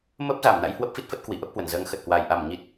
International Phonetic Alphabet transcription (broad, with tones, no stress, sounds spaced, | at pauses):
m ə˦˥ p̚ z a˧˩ m n a̰˧˥ j h w ə˦˥ p̚ f i˦˥ t̚ f ə˦˥ t̚ k w i˨˩ ʔ ə˦˥ p̚ h w ə˧˩ n z əː˨˦ ŋ x ə˨˩ t̚ h w a˨˩ j ʔ a˧˩ m ɲ i˨˩ t̚